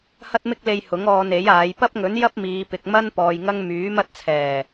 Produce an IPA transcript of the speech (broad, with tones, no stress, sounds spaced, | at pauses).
h ɐ˥ t̚ m ɪ˥ k̚ l e˧ j h ʊ˨˥ ŋ ɔː˧ n e˨˥ j aː˨˧ j p ɐ˥ p̚ ŋ ɵ˨˥ n j ɐ˥ p̚ m iː˨˧ p ɪ˨ k̚ m ɐ˥ n p ɔː˨ j ŋ ɐ˥ ŋ m yː˨˥ m ɐ˥ t̚ t͡sʰ ɛː˨˩